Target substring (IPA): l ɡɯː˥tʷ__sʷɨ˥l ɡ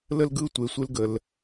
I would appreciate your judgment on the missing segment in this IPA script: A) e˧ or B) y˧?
A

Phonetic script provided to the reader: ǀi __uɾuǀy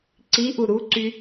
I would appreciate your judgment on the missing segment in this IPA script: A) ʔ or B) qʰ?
A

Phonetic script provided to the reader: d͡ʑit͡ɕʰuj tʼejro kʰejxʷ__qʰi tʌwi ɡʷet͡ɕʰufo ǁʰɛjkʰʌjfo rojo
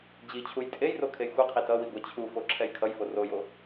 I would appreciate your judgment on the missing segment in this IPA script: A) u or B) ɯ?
B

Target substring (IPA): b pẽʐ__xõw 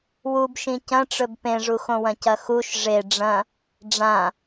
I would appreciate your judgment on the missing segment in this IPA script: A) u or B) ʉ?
A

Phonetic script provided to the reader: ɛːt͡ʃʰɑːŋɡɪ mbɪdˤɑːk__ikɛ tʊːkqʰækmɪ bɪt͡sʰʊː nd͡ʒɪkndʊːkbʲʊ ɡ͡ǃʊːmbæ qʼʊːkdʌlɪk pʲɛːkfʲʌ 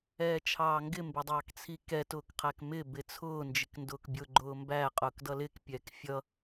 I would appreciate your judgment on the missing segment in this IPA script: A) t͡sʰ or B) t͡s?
A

